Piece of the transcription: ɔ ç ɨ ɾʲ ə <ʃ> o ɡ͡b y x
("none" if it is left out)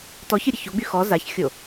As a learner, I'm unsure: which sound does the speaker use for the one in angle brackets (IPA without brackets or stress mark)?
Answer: ç